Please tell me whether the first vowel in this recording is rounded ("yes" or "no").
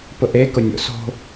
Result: yes